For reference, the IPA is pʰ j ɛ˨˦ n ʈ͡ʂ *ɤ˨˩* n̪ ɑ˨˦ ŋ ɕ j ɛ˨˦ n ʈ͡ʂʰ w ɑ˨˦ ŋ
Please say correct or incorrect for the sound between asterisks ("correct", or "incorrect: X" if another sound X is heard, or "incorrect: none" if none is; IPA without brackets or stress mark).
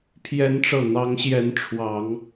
correct